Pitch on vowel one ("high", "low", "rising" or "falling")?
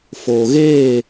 low